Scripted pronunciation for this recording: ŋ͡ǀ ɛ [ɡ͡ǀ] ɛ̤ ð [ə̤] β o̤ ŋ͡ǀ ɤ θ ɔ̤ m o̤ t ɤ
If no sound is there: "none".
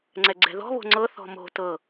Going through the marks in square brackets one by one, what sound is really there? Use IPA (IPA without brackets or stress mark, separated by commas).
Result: ɡ͡ǀ, ɔ̤